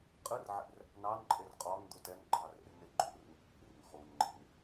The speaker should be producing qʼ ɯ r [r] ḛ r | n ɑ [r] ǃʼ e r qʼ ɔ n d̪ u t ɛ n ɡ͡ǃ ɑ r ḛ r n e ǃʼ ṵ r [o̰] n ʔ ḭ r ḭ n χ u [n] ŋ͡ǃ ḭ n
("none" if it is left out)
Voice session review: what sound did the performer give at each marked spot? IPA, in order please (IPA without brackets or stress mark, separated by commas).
ʕ, n, ṵ, n